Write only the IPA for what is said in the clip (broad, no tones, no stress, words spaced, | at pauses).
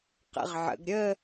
qə̰ʁʕə̰ɡ ɾʲə